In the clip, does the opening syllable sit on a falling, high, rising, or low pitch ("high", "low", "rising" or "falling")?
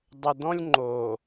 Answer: low